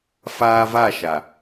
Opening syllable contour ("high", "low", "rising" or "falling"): low